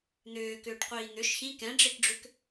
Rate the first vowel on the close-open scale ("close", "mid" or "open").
close